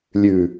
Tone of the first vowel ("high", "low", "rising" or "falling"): low